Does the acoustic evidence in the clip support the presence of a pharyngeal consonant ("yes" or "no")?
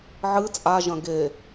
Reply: yes